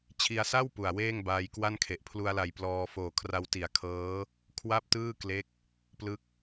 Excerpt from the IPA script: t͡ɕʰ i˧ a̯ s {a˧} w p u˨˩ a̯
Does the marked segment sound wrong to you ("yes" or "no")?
yes